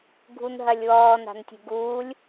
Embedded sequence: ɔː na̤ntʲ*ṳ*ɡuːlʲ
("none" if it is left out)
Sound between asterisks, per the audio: ṳ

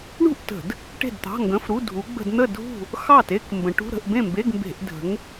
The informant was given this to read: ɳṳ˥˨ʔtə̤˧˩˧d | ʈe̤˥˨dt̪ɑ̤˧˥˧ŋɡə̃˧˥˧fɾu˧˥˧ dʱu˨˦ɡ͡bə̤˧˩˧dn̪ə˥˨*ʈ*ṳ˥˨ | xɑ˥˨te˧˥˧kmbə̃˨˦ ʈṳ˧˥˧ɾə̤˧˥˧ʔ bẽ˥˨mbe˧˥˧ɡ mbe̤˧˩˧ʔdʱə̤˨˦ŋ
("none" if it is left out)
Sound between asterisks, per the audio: dʱ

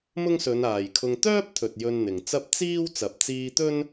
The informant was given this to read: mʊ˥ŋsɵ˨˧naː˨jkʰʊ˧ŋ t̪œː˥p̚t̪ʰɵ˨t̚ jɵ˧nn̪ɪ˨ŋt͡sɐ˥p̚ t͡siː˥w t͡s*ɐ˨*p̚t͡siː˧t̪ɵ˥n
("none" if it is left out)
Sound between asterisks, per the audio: ɐ˨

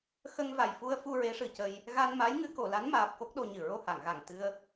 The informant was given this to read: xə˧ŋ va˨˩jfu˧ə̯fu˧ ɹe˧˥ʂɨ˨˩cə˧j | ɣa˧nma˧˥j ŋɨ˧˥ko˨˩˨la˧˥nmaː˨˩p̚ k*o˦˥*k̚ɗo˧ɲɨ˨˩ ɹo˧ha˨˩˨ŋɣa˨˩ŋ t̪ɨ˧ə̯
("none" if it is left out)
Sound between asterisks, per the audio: o˦˥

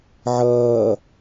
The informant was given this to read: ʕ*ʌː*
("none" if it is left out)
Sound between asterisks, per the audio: ʌː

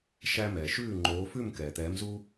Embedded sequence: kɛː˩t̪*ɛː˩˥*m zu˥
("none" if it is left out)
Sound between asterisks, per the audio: ɛː˩˥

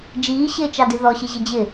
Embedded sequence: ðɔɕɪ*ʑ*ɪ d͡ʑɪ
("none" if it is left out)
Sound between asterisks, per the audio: ʑ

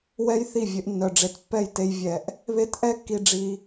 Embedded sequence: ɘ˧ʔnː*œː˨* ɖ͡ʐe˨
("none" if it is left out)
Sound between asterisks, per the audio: œ˨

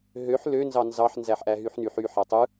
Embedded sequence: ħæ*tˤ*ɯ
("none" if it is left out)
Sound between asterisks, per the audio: tˤ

